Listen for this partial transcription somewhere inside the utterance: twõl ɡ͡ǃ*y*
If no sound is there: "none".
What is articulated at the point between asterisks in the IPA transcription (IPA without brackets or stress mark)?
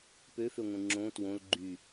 y